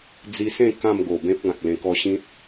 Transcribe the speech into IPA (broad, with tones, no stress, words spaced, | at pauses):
d͡zi˧sẽ˥˧ kã˥˧mɡo˨˩bẽ˦p̚ ɡã˨k̚lẽ˧kɔ˧ɕĩ˦t̚